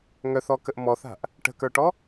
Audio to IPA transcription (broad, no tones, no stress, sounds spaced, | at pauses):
ŋ œ θ ɔ k ə ʔ m ɔ θ a̤ ʔ | ʈ ə̤ k ə˞ ʈ ɔ